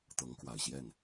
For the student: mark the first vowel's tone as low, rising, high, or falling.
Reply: rising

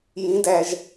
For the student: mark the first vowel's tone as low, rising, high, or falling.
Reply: rising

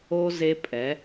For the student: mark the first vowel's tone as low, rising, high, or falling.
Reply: high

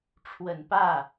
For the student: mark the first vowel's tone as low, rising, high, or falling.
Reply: low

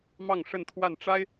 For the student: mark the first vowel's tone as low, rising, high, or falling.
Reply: falling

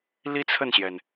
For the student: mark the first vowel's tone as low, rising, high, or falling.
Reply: high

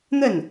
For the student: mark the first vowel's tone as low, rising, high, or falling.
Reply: falling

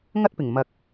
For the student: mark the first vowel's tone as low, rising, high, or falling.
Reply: high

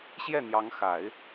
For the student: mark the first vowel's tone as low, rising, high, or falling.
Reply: falling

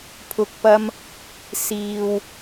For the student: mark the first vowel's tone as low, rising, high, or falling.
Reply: low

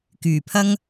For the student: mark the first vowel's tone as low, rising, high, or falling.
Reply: low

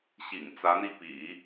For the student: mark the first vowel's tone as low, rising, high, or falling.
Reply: low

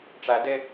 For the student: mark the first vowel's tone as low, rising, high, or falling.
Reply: high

